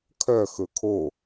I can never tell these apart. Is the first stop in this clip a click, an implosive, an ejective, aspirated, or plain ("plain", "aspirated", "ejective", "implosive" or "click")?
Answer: aspirated